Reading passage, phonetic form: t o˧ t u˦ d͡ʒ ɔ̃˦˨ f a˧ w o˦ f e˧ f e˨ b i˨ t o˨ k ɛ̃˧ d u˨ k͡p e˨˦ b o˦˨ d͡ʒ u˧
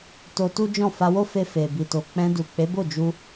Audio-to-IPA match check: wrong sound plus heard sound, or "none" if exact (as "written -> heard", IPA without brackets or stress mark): k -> k͡p